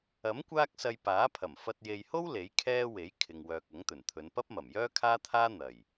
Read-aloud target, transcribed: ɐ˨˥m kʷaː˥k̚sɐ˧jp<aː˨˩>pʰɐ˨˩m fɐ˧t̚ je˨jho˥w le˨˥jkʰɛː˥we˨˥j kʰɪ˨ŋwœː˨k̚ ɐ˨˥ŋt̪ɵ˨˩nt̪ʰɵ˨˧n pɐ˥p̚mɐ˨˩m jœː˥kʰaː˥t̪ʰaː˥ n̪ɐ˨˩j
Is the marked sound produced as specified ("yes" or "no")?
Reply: no